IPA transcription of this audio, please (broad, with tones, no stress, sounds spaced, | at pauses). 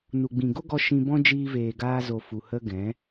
n u˨ ɡ͡b ĩ˨ ɡ o˦ ɡ ɔ˧ ʃ ĩ˧ b ɔ̃˦ d͡ʒ iː˦ v eː˧ ɡ aː˦ z o˧ f u˨ h ə˧ ɡ ɛ̃˨˦